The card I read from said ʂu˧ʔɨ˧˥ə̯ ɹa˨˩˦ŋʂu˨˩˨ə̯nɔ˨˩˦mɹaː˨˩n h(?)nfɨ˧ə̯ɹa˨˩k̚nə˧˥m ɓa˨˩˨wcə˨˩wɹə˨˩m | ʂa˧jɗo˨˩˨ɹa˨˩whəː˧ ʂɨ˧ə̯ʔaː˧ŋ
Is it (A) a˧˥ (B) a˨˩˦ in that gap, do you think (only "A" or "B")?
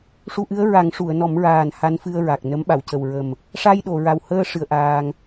A